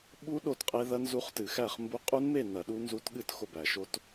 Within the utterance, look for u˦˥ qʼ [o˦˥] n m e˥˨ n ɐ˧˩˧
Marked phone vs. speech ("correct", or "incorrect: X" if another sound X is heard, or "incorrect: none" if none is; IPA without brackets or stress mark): incorrect: u˦˥